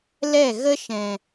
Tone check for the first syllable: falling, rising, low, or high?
falling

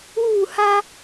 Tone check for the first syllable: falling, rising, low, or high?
falling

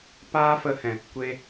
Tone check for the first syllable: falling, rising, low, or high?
high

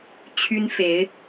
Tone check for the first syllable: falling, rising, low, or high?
high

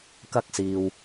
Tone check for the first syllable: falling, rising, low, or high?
high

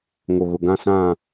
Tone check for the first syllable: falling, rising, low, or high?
low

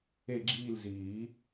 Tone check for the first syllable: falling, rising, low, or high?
falling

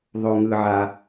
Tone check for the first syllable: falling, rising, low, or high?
low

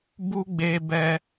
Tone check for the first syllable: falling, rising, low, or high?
high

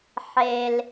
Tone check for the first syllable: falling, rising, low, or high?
low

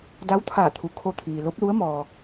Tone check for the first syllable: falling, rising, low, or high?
rising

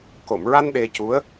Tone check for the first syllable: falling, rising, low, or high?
low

